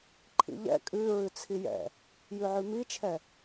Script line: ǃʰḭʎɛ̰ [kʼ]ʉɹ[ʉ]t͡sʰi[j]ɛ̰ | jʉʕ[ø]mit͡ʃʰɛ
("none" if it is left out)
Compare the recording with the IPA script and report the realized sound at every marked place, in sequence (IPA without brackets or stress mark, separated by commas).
kʼ, ʉ, j, ʉ